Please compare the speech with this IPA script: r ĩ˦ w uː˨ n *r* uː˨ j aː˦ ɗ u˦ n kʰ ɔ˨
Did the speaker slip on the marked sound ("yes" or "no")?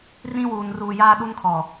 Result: no